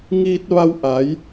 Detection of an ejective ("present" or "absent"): absent